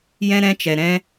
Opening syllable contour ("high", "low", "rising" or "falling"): high